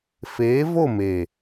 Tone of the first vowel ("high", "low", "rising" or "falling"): rising